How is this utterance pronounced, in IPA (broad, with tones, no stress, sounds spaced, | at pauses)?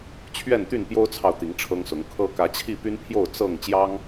t͡ɕʰ ɥ ɛ˥˨ n t̪ y˥˨ n p j o˦ ʊ̯ t͡sʰ ɑ˨ ʊ̯ t̪ i˨˦ ŋ ʈ͡ʂʰ ɤ˦ ŋ s ʊ˨˦ ŋ kʰ ɤ˦ k ä˨˦ t͡ɕʰ i˥˨ p y˦ n pʰ j o˥˨ ʊ̯ t͡s ɤ˥˨ ŋ t͡ɕ j ɑ˦ ŋ